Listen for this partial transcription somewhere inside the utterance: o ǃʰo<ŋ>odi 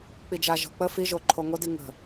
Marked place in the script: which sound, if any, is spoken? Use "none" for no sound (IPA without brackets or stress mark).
ŋ